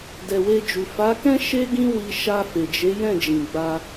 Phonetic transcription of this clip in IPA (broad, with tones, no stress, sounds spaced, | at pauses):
d ɛ˨ w e˧ d͡ʒ u˨ f a˨˦ k ɛ̃˦ ʃ e˦ ɡ ĩ˦ w i˧ ʃ a˧ f e˨ d͡ʒ e˨˦ j ɛ̃˦˨ d͡ʒ ĩ˨ ɡ͡b a˧